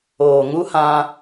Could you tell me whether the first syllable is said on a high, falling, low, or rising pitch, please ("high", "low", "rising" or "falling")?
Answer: low